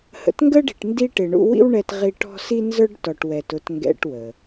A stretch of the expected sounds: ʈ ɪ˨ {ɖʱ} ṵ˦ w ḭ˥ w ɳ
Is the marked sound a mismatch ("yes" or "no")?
yes